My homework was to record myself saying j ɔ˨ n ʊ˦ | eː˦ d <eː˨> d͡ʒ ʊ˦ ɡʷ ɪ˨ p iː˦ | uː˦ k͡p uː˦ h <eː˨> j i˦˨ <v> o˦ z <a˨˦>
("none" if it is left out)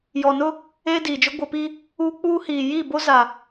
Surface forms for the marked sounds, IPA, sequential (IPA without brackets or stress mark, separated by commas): iː˨, iː˨, b, a˨